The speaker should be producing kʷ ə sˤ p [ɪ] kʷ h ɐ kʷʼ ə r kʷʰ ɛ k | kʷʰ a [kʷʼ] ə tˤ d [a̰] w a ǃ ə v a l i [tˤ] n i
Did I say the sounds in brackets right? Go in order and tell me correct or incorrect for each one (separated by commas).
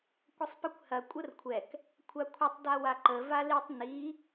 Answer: correct, incorrect, incorrect, correct